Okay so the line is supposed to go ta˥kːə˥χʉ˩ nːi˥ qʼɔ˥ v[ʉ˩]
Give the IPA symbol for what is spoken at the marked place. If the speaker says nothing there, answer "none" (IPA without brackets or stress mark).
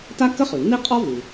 ʉ˩